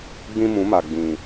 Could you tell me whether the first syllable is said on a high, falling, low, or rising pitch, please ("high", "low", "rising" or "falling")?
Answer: high